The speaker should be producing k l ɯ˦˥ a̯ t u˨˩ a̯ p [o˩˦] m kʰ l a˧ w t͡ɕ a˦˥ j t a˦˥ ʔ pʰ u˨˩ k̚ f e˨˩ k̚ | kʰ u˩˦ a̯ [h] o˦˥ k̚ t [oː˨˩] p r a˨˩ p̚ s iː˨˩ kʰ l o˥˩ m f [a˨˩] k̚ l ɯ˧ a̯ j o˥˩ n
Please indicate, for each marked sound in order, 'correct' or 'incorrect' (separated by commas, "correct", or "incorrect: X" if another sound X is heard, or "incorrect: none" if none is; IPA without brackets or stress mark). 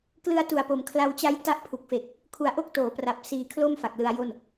correct, incorrect: ʔ, incorrect: oː˩˦, correct